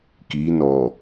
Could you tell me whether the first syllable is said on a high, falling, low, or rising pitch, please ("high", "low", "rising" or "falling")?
rising